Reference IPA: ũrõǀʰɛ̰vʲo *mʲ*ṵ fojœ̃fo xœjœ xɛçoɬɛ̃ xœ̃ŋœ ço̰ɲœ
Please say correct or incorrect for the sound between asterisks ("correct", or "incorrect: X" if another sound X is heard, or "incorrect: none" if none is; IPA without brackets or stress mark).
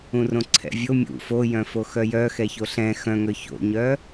correct